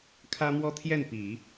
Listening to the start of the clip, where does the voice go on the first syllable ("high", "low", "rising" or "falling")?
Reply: high